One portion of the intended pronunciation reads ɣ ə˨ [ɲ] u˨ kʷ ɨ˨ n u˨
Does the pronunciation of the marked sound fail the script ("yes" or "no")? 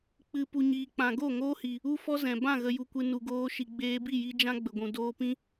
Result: yes